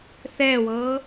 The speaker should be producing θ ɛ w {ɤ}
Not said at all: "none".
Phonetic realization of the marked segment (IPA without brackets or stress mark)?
ɤ